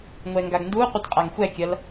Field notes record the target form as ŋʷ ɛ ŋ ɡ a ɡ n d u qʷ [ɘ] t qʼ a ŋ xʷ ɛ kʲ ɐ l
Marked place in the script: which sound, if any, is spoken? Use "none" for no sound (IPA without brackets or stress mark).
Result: ɘ